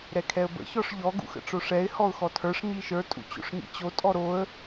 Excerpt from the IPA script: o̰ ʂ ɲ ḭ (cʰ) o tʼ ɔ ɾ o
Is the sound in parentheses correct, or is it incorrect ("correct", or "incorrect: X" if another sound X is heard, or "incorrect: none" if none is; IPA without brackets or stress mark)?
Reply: incorrect: t͡ɕ